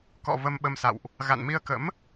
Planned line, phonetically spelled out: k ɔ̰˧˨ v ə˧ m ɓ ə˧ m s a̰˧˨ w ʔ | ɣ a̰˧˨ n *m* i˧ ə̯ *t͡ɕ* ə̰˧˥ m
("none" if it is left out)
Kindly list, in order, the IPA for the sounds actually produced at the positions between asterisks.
m, k

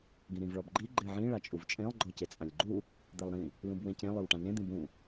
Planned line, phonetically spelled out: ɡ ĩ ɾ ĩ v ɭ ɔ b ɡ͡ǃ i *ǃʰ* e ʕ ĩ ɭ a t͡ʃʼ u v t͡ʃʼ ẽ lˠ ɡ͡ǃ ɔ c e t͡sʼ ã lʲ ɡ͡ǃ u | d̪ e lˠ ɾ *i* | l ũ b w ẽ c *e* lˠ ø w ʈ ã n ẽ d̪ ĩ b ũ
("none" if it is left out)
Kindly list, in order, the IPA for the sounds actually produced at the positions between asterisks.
ɡ͡ǃ, ĩ, ẽ

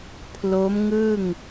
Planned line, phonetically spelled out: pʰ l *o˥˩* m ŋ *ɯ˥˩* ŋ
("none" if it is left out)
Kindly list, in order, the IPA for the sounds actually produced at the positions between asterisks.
o˦˥, ɯ˥˩

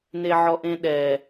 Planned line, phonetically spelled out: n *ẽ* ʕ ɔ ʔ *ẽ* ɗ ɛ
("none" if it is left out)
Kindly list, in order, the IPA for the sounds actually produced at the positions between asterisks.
e, ẽ

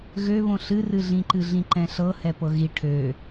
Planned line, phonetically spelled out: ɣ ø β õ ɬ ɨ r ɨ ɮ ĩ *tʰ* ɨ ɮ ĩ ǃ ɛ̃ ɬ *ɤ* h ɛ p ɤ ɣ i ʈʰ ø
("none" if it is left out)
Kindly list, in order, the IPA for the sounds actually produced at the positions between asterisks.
ǃ, ɤ

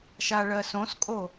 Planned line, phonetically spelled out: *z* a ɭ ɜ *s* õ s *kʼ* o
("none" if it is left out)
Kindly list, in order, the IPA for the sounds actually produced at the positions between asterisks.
ʃ, s, kʼ

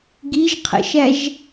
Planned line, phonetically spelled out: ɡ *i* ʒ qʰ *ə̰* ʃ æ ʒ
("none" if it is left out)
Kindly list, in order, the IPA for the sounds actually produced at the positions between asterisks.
i, ə̰

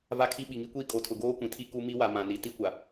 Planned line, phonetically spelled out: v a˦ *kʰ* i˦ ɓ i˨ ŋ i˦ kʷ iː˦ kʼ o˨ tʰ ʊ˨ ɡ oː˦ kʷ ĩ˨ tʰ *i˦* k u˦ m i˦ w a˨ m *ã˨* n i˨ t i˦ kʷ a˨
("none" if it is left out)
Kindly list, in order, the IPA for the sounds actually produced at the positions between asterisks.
kʰ, i˦, ã˨

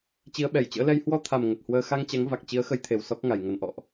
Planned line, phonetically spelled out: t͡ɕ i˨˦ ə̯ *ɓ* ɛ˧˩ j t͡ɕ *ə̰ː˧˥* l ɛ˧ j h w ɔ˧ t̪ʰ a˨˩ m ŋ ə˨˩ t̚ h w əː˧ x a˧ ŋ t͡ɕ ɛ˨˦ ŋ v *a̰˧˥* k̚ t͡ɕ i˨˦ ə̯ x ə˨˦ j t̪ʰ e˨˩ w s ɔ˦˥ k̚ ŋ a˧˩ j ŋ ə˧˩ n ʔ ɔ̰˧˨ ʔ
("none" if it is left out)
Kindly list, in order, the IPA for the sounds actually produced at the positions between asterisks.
ɓ, ə̰ː˧˥, a˨˩

